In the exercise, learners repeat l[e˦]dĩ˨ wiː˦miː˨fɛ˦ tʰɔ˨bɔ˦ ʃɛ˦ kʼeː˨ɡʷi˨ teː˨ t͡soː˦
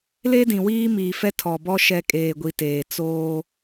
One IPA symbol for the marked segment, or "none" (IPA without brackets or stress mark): e˦